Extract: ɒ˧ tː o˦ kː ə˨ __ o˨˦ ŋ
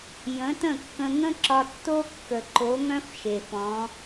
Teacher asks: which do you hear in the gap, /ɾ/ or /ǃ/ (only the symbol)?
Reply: ǃ